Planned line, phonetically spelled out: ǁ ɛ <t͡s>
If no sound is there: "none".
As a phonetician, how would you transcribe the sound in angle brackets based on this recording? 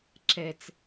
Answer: t͡s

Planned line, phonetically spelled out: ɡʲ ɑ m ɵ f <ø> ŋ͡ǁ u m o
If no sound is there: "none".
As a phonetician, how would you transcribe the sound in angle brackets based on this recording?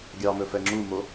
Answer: ɛ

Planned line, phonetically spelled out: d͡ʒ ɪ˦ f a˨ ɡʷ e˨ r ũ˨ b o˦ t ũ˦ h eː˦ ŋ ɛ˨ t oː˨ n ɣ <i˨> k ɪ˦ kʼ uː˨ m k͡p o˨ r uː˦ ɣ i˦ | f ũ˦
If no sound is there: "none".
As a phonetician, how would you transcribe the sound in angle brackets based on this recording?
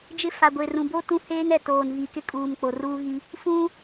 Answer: i˨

